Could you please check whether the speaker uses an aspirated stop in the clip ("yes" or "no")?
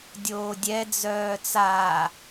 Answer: no